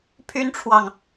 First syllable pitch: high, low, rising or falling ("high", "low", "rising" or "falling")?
high